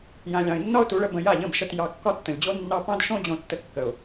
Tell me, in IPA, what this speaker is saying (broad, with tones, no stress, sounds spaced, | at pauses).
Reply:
j ã˨ lʲ ɑ̃˨ ɪ̯ nː ɒ˧ ʊ̯ t u˨˦ ɭ ə˧ b ə̃˧ j a˦˨ ʎ ə̃˦˨ b ʃ ə˧ t j ɑ˧ kː ɒ˦ tː ə̃˨ lʲ d͡ʑ o˦ nː ɑ˦ p ɑ̃˦ d ʃ õ˦ d͡ʑ õ˧ tː ə˧ kː ə˨ ʊ̯